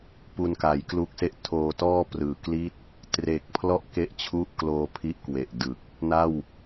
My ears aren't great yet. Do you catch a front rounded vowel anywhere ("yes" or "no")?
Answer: no